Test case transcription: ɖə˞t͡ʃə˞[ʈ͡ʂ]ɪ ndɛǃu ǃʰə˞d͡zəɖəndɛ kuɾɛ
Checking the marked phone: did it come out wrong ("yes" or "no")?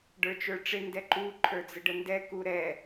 no